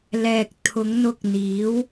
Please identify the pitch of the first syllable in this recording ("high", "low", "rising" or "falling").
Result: low